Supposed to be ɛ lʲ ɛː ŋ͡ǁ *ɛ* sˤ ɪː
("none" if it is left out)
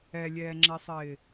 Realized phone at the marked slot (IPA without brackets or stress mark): ɛ